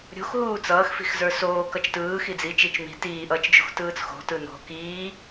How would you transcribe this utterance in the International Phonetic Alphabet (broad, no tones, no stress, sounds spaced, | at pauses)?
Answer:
ɾʲ o̤ x ɦ uː t͡s ʌː x f i̤ x z ə˞ s oː k ʌ t͡ʃ t ɯː x i d͡z i t͡ʃ i t͡ʃ m i̤ t iː ʔ ʌː t͡ʃ d͡ʒ o̤ x t ɯː t͡s x o̤ t ɯ n o̤ k iː